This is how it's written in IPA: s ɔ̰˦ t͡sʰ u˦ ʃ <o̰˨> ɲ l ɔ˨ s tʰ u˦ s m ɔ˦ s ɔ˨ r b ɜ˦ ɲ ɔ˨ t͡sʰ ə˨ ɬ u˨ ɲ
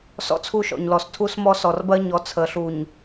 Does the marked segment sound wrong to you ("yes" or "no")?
yes